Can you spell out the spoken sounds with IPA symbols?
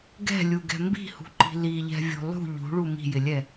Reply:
ɡ ɛ̤ lʲ u ɡ ɛ̤ m b i̤ h ṳ ǃ i̤ l i ʎ ɛ̤ vʲ o̤ lˠ ṳ ʎ ṳ ɭ u m i̤ j ɪ lʲ ɛ

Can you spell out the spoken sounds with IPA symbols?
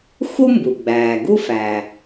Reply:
x u˥ m b u˩ ɡ͡b æː˩ ɡ u˥ f æ˩

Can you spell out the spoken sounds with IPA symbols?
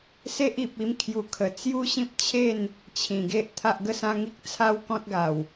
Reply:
s e˦ ʔ i˨ p̚ i˧ m kʰ j u˨˩ kʰ ə˨˩ t͡s j u˦ ɕ ĩ˦ p̚ t͡ɕʰ e˥˧ n | t͡ɕʰ ĩ˨˩ ɡ e˦ ʔ t̪ʰ a˦ ʔ ɡ ə˦ s ã˦ ŋ i˦ k̚ t͡sʰ a˦ w k ɔ̃˦ t̚ ɡ a˨˩ w

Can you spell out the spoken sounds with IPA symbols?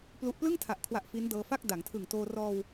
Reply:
p l u˥˩ ʔ p l ɯ˥˩ ŋ tʰ a˨˩ ʔ kʰ w a˨˩ ʔ f i˦˥ n d ɤː˧ f a˥˩ k̚ d a˩˦ ŋ tʰ ɯ˨˩ ŋ t oː˧ r ɔː˧ w

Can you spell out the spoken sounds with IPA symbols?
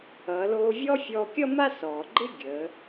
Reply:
ʌː˩˧ l oː˧ vʲ ɔ˥ fʲ ɔː˧ kʲ ʌ˥ m a˥ s ɔː˩ ɡ͡ǃ ɪ˥ ɡʲ əː˩˧

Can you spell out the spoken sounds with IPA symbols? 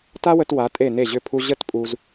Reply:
t a˥ w ə˧ t w a˩˧ tʼ e˧˩ n e˧˩ ʑ ʏ˧˩ pʰ u˧ ʑ ə˥˧ t pʼ u˧ z

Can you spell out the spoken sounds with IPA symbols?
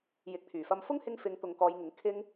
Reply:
j ɪ˨˥ k̚ t̪ʰ yː˨˩ f ɐ˧ m f ʊ˥ ŋ h ɪ˧ ŋ f ɪ˨˧ ŋ t̪ ʊ˨ ŋ k ɔː˨˧ j ŋ ɪ˨˧ ŋ kʰ ɪ˥ ŋ

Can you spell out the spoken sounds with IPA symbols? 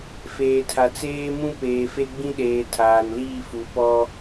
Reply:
f eː˨ tʰ a˨ t͡s eː˦ m ũ˦ p eː˨ f e˦ ɡ͡b ĩ˦ ɗ eː˨ tʰ aː˨ n l iː˦˨ f u˨˦ p ɔ˦

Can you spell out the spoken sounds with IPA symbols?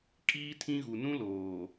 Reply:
kʼ iː˦ tʰ ĩ˦ ɣ u˨ n ũ˦ l oː˨

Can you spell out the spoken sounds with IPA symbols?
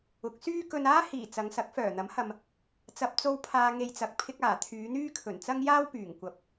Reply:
ʊ˨˥ k̚ s yː˥ k ɵ˧ n aː˥ h iː˨˩ t͡s ɐ˨˧ ŋ s ɐ˨˥ k̚ f œː˨˩ n̪ ɐ˨˥ m h ɐ˨ m | t͡s ɐ˨ p̚ t͡s o˧ w pʰ aː˨ ŋ e˨ j t͡s ɐ˨ k̚ pʰ ɪ˧ k̚ aː˨˩ t̪ʰ yː˨˧ n̪ yː˥ kʰ ɵ˨˩ n t͡s ɐ˧ ŋ j aː˧ w p yː˨˩ ŋ kʷ ɐ˨˥ p̚

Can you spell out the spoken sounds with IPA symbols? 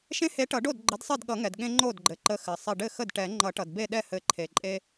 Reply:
ʃ ẽ˦ h e˨˥ ʈ ʌ˨˩˦ ɖ o˥˩ d ɡ͡ǃ ə˨˥ d sˤ ɘ˥˩ d ɠ ʌ˨˩˦ ŋ ɛ˩ d ɠ ẽ˦ ŋ͡ǃ o˥˩ d ɡ͡ǃ ɘ˩ ǃ ə˨˥ x ɘ˩ sˤ ɘ˧˩ ɖ ɘ˥˩ x ə˥˩ d ʈ ɛ˨˩˦ ŋ͡ǃ ʌ˨˩˦ ʈ ʌ˩ d b e˥˩ ɗ ɛ˥˩ h ɘ˨˩˦ ǃʰ e˩ ǃʼ e˦

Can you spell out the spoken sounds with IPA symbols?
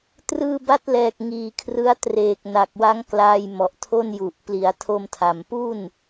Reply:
t r ɯː˧ b a˦˥ t̚ l ɛː˨˩ k̚ ŋ iː˨˩ kʰ r ɯ˦˥ a̯ t r eː˨˩ k̚ n a˨˩ k̚ w a˦˥ ŋ k l aː˧ j m ɔ˨˩ ʔ tʰ o˥˩ n j u˨˩ ʔ p l i˩˦ a̯ tʰ o˧ m tʰ a˨˩ m p u˥˩ n

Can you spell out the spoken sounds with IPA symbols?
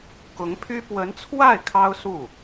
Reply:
k ʊ˧˥ ŋ pʰ y˥ p w ə˧˥ n t͡sʰ w a˥˩ ɪ̯ kʰ ɑ˥ ʊ̯ s u˥˩

